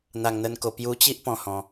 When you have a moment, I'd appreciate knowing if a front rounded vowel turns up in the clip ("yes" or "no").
no